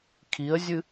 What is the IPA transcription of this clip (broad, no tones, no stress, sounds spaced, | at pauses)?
kʰ i ə̯ zʲ ɨ